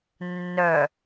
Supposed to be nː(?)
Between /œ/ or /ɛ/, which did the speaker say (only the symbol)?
œ